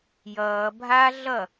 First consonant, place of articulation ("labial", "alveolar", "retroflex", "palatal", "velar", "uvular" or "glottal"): palatal